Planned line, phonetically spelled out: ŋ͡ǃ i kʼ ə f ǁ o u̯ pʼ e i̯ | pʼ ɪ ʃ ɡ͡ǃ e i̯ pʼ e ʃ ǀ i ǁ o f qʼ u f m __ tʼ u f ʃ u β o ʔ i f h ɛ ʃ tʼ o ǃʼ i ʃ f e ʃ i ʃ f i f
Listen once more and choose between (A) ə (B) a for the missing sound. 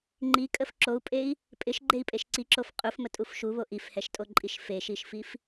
A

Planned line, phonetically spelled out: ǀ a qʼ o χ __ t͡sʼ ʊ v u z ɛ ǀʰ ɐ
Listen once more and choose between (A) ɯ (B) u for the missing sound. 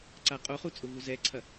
B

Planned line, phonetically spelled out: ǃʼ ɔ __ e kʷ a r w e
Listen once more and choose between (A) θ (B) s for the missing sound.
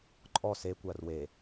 B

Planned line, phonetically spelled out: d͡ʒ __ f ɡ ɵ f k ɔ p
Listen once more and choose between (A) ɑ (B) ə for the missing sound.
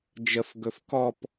B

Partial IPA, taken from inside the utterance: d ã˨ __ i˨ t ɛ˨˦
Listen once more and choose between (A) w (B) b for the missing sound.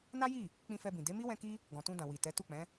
A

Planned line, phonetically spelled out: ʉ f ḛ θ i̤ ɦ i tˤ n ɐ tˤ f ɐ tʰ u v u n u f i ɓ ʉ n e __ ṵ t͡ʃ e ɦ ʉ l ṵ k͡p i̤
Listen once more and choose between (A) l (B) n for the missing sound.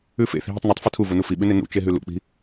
B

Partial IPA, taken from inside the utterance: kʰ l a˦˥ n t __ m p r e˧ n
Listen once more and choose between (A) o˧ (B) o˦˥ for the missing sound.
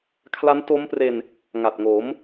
B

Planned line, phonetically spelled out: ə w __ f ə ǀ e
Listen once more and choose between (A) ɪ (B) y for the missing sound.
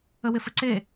A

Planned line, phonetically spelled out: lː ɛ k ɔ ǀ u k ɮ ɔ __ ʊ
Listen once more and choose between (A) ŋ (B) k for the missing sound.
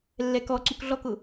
B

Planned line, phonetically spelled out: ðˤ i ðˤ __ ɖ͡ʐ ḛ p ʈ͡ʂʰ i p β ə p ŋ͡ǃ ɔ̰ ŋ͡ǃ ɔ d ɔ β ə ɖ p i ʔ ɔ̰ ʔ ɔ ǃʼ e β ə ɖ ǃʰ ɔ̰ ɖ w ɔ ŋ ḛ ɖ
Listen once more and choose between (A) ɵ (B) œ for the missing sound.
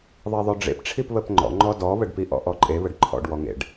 B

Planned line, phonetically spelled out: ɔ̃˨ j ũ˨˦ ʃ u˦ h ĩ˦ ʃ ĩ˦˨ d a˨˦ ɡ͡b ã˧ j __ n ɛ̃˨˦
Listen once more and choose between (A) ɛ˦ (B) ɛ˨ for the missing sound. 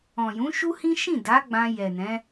B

